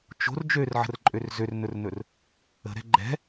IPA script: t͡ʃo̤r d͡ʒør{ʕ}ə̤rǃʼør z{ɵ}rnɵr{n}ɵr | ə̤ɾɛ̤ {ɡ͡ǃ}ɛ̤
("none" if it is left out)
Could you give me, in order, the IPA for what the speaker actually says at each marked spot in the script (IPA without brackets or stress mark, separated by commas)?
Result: ʕ, ø, n, ɡ͡ǃ